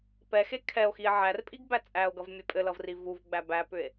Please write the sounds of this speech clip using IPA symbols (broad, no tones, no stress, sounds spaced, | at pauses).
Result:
p ɛ x e kʰ ɛ o̯ x i e̯ ʕ æ r pʼ i ɡ b æ t͡sʼ æ o̯ ɡ ʌ v mʲ ɛ pʼ ɘ l ʌ v r i v u v ɡ͡b æ b æ p ʏ e̯